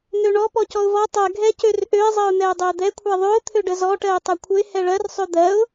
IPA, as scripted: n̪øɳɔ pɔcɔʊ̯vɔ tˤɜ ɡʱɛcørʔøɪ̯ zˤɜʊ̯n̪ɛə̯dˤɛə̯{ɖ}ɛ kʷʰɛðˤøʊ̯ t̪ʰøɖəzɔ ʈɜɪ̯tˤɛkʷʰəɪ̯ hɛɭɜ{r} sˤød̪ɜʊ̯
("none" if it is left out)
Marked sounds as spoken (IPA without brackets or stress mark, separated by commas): d̪, r